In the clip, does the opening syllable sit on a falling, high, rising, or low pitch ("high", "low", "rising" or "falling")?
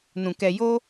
low